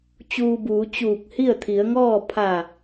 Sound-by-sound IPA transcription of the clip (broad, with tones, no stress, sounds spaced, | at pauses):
t͡ɕ uː˧ b uː˩˧ t͡ɕ uː˧˩ k̚ h i˥˨ ə̯ t̪ʰ i˩˧ ə̯ ŋ ɔː˥˨ pʰ a˧˩